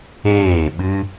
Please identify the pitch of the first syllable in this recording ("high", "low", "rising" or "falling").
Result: falling